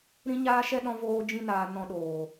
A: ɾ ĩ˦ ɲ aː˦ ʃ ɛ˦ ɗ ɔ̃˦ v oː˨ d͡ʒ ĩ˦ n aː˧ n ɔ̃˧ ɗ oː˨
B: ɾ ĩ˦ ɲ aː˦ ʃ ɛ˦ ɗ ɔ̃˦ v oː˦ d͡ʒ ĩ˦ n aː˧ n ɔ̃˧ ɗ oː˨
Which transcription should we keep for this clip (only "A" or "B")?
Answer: B